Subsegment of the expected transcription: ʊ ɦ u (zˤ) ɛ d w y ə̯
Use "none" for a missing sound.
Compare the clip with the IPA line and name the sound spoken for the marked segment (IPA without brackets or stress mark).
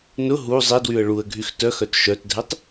zˤ